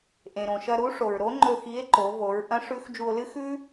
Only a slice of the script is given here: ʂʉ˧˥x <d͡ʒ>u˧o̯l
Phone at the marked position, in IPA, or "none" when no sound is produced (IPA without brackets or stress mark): d͡ʒ